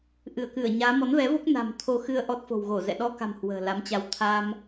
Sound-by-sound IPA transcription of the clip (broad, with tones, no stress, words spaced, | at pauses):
ʔɨ˧˩ə̯kɨ˧˩ə̯ɲaː˨˦ mɔ˨˦nvɛ˨˦vo˦˥k̚na̤ː˨˩m t̪ʰo˧xɨ˧ə̯ ʔɔ˦˥t̚fo̤˨˩wɣo˧˩zɛ̰˧˨ ɗɔ˧ka̤˨˩m hwə̤ː˨˩la˨˦mt͡ɕa˧w t̪ʰa˧m